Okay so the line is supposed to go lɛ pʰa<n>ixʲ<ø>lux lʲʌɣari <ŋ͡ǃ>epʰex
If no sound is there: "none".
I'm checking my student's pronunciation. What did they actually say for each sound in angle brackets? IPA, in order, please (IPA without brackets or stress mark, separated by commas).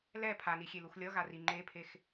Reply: n, e, ŋ͡ǃ